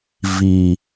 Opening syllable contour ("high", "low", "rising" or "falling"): low